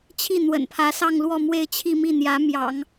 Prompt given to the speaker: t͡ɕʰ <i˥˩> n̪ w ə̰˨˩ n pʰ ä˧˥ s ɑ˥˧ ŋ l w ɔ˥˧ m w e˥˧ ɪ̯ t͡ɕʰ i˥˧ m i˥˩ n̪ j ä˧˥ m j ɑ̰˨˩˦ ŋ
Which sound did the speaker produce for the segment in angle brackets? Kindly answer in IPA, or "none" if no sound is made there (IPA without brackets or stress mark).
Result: i˥˩